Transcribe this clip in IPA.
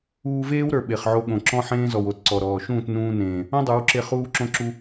uː˧ v eː˦ w ɾ ə˞˨ ɓ e˨ χ ʕ o˧ ɠ õ˨ ǁ ɔ̃˦ ħ ẽː˦ z ɔ˨ w o˨ t ǀ ɔ˨ ɾ ɔː˨ ʃ ũː˦˨ t n ũː˧ n ẽː˨ | õ˦ dˤ ə˞˨˦ w ǁ e˧ χ uː˦ ǁ õ˦ ǁ u˦

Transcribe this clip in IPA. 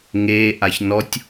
ŋ eː ʔ a ç n ɔ tʲ

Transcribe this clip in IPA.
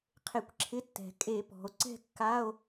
qʰ e˧˩˧ kʷ ǁʰ ɪ˧˥˧ tː ɛ̤˩ kʼ e˧˩˧ p ɔ̤˩ o̯ ǀ ɛ̤˥˧ kː a˧˥˧ o̯

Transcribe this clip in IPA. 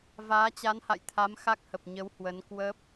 v aː˨˦ t͡ɕ a˨˦ n h a̰˧˨ j t̪ʰ a˨˦ m x a˦˥ k̚ h ə˨˩ p̚ ɲ ə˨˦ w h w ə˨˦ n k w ə˦˥ p̚

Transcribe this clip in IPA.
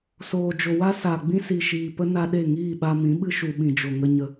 s oː˨ d͡ʒ o˨ w a˦ s a˨ ɡ͡b ĩ˦ s i˨ ʃ iː˨ p ə˦ n a˧ ɗ e˦˨ ŋ iː˦˨ ɓ a˧ m ĩ˨˦ ɓ ɨ˦ ʃ u˨ ɓ ĩ˨ d͡ʒ o˨ ŋ ə˦ ɲ ə˦

